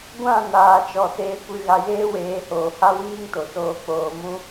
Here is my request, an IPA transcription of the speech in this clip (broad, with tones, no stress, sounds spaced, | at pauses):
ɡʷ ã˦˨ n aː˨ t͡ʃ ɔ˨ s eː˧ kʷ ɨ˧ ɣ a˧ j eː˦ w eː˨˦ h oː˨ h a˦ w iː˦ ŋ t o˨ s oː˧ k͡p oː˧ m ũ˦